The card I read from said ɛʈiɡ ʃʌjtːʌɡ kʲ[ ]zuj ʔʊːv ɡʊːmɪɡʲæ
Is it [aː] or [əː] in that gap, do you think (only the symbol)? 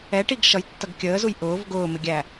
əː